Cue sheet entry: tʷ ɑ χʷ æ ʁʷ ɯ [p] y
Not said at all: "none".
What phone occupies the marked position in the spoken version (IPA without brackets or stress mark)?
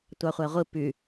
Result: p